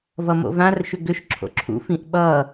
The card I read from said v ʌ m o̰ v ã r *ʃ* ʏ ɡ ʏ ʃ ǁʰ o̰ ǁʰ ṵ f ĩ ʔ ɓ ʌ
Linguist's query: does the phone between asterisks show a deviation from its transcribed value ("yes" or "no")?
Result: no